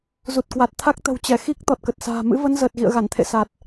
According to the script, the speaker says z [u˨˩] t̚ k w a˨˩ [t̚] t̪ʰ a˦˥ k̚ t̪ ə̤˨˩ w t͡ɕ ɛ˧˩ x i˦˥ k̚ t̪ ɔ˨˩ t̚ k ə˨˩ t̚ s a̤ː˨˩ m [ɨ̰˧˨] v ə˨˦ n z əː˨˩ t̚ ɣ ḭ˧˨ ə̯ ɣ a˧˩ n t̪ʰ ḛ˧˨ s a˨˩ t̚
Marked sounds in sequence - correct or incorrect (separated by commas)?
correct, correct, incorrect